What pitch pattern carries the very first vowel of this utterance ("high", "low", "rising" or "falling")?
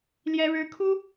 high